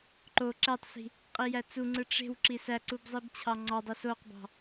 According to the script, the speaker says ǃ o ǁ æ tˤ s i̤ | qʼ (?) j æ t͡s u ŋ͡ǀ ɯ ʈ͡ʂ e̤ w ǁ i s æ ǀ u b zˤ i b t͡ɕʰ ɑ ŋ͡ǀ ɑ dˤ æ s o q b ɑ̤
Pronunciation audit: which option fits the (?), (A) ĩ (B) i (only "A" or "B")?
B